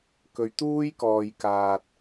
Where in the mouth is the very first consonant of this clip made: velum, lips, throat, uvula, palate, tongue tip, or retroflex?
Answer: velum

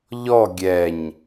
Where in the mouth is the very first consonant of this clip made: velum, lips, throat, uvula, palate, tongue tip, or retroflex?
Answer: palate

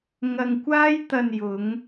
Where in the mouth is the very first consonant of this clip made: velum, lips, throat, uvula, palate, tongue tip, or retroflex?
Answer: velum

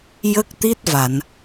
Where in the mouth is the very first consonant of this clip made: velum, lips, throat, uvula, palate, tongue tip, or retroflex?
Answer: palate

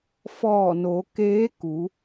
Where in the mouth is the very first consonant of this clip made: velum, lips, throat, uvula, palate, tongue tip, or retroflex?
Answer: lips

